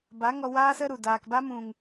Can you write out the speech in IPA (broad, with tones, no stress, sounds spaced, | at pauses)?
b a˨˦ ŋ ɔ˧ w aː˦ s ə˦ ɾ u˨ d aː˧ k b a˦ m ũ˧ ŋ